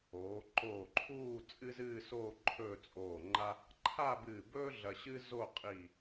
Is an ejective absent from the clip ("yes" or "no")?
no